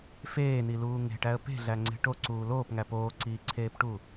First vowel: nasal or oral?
oral